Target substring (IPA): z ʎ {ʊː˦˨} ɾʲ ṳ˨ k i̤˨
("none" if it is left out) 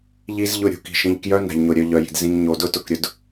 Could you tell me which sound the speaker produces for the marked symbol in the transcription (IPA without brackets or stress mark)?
ʊ˦˨